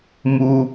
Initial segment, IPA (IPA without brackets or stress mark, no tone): m